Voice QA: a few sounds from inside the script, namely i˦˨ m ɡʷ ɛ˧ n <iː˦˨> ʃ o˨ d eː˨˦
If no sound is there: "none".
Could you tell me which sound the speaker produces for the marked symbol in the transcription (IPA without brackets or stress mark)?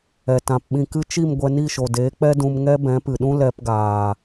i˦˨